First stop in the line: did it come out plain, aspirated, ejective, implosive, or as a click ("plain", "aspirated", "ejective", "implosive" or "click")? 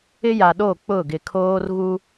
implosive